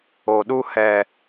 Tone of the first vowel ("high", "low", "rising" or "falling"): low